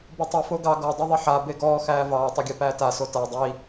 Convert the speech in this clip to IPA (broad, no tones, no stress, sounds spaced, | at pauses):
b ɯ tˤ u f o ɡ ɑ ɡ ɔ dˤ e ðˤ e ħ a b e ɡ ɔː x æː v ɑː tˤ o ɡʲ æ p æː t a s o t a dˤ i